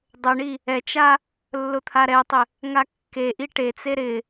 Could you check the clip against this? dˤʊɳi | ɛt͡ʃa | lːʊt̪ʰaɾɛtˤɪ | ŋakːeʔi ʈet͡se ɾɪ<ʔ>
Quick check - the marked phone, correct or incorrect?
incorrect